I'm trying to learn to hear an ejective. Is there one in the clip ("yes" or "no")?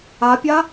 no